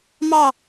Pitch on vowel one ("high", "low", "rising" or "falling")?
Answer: falling